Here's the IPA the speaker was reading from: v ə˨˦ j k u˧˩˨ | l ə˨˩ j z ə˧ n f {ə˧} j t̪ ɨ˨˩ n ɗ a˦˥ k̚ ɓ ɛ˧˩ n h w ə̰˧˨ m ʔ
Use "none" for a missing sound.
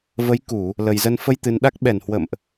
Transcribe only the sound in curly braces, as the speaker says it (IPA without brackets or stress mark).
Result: ə˧